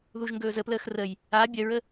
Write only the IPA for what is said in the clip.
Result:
ð u ʒ ŋ ɡ ɵː z ə p l əː x r ə j | a bʲ œ ɹ ə

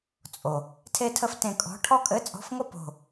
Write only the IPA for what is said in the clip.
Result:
t͡sʼ o˩ | tʰ e˥ tʰ ə˥ f t ẽ˦˨ kʼ ɔ̤˧˥˧ ʈʰ ɔ˥ kʼ ɘ˧˥˧ t͡sʼ ɔ̤˧˥˧ f ŋʷ ə˥ p o̤˦˨

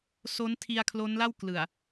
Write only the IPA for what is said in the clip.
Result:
s o˦˥ n tʰ i˧ a̯ kʰ l o˦˥ n l a˥˩ w k l ɯ˨˩ a̯

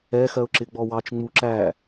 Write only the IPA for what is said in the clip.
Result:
ɛ x ɜ ʊ̯ ǁ ɪ ɡ͡b ɔ w ɑ t͡ʃ ŋ͡m u ǁ æ

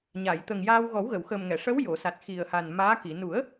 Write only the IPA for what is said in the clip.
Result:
ɲ a˨˩˨ j t̪ ə˨˩ ŋ j aː˧ w ɣ ɔ˨˩˦ w ɣ ə˨˩˨ w x əː˨˩ m ŋ ɛ˨˩˨ ʂ ə˧˥ w j o˨˩˨ s a˨˩ t̚ x i˨˩ ə̯ h a˨˩ n m aː˧˥ k i˨˩˨ n u˨˩˦ ə̯

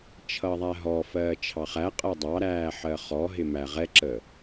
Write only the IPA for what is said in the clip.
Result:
t͡ʃʰ ʌ ðˤ æ ɦ ɔ f ɜː t͡ʃʰ ɑ χ æ qʼ ɜ dˤ ɑ ɾ æː ħ ɜ χ ɔ ɦ ɪ m æ ʁ ɛ ǁ ə

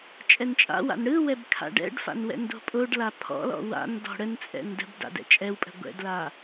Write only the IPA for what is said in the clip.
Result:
t͡ʃʼ ɛ n t͡ʃʼ a̰ w a̰ n ɽ ɯ w ɛ b kʰ a̰ ɖ ɛ̰ ɖ f a̰ n w ɛ̰ n d o̤ pʼ o ɖ l a pʰ ɔ̰ l ɔ̰ w a̰ n d ɔ̤ ɽ ə n t͡sʼ ɛ̰ n d ə̤ b d a̰ d ɛ̰ t͡ʃʼ ɛ w pʼ ə̤ ɡʷ ɛ̰ d l a

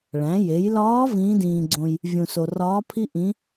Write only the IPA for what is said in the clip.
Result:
ɭ æ̃˩˧ j e˩˧ j l ɒː˧˥ v ĩː˧˥ d ĩː˧ ɡ͡ǀ õ˧ j | vʲ ũ˧ s o˧ r ɒː˧˥ pʰ i˥ ʔ ĩ˧˥

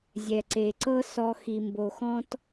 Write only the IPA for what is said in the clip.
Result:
zʲ ɛ˩ ǀ e˩ ǀ ɤ˥ s ɔ˧ x i˩ m b o˩ x ɔ̃˥ t

